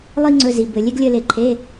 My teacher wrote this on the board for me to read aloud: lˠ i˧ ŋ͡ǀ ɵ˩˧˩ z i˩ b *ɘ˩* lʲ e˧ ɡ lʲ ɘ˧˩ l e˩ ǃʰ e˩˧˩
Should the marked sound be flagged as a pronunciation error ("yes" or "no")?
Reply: no